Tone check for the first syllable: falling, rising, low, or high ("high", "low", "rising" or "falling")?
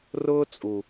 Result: high